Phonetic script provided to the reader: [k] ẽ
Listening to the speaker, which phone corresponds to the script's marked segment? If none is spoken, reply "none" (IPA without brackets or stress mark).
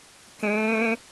k